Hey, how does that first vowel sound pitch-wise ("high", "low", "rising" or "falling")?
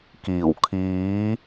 low